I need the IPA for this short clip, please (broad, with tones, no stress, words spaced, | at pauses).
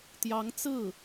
t̪jɑ˧˥ŋ t͡sɹ̩˥˩